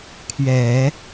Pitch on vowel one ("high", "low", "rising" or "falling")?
low